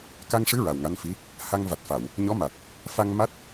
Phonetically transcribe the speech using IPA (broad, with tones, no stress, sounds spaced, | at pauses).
k a˧ ŋ ʂ ɨ˧˥ ɹ a˨˩ w ŋ a˧˥ n f i˧˥ | h a˧ ŋ v a˨˩ t̚ f a˨˩˨ w | ɲ ɔ˧˥ m a˨˩ t̚ | f a˧ ŋ m a˦˥ t̚